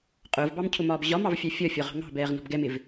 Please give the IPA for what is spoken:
qʼ ʊː v b ɑ m cʰ ʊ m ɒː b ʑ ɒ m ɑ v fʲ ɑ fʲ ɒ fʲ ɒ ʁ ɑ̤ ŋ ɑ̤ b ɛː ʁ n ɔ̤ b ɡ ɛ m ɪ v

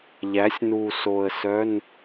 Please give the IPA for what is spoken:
ʎ æ˩˥ sʲ n u˨˩ s o˨˩ ə̯ s œ˧˥˧ n

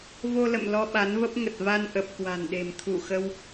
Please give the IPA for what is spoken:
v o˧ l ə̰˧˨ m l ɔ˧ ɓ a˨˦ n v ə˦˥ p̚ ŋ ə˨˩ t̚ v a˧ n ʔ ə˨˩ p̚ k w a̤˨˩ n ɗ e̤˨˩ m t̪ʰ u˧˩ x ə˧ w

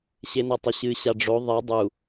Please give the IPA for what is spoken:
ɕ e n ɐ tˤ ɘ ɕ ɨ ɕ a ɖ͡ʐ o ðˤ ɛ dˤ u

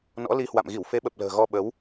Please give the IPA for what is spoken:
n ɔ̰˧˥ l i˧ h w a̰˧˨ m ɣ i˧˩ w f e˨˦ ɓ ə˨˩ p̚ l ə̤ː˨˩ ɣ ɔ˧ ɓ ə˨˦ w

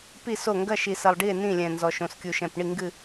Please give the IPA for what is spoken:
p i˥˩ s o˥˩ ŋ ɡ ɐ˥˩ ʃ i˨˩ s ɐ˨˩ lˠ ɖ i˥˩ e̯ n ĩ˥˩ lʲ ɛ̃˨˩ n z ɔ˨˩ ʃ õ˨˩ s kʲ u˨˩ ʃ ɛ̃˨˩ p ɳ i˥˩ ŋ ɡ ɨ˥˩

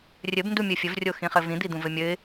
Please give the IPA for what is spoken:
rʲ ɘ b n d u mʲ ɘ fʲ ɘ v rʲ o x ĩ χ ɘ v ĩ d̪ i d̪ ũ v ɘ mʲ ɘ ɪ̯

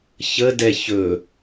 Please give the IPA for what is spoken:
ç ə d ɛ ç ɵ

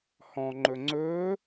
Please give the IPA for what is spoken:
h ɔ̃ ŋ͡ǃ ɵ ŋ͡ǀ ɵː

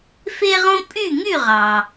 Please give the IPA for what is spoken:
f e˥ ʁ õ˥ pʼ y˥˩ ŋ y˥˩ ʁ ɑ˩

